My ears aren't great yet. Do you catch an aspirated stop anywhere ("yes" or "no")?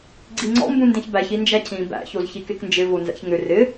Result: yes